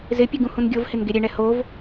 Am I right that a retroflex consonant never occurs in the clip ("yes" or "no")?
no